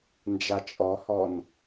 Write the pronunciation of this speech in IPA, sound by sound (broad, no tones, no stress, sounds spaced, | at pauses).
n d͡ʒ a t͡ʃʼ ɔ h ɔ n